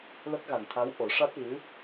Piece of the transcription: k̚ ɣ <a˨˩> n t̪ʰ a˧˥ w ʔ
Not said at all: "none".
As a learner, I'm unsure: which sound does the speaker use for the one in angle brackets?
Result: a˨˩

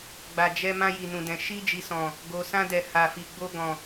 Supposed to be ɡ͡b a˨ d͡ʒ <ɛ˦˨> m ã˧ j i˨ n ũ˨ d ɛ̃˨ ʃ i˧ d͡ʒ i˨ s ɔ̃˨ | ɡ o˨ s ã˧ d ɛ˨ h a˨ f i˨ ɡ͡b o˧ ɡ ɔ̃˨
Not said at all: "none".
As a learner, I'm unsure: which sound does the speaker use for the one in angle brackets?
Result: ɛ˧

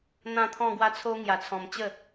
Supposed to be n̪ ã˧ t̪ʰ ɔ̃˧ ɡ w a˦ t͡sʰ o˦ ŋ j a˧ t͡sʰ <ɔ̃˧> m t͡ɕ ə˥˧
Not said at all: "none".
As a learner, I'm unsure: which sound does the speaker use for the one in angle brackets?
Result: ɔ̃˧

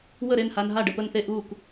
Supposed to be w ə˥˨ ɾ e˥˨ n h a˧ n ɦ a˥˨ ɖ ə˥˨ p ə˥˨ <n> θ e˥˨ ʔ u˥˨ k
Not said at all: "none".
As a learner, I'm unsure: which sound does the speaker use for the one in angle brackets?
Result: n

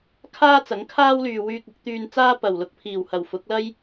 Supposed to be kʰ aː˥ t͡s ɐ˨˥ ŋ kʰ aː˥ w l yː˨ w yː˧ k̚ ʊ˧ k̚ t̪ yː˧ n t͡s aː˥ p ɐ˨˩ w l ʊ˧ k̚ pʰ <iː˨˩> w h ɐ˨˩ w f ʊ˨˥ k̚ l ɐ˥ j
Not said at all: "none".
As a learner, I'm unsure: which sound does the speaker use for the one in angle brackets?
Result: iː˨˩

